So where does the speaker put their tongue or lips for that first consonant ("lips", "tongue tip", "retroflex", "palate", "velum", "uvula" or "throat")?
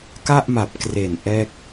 velum